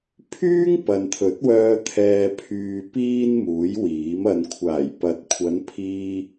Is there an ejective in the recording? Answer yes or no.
no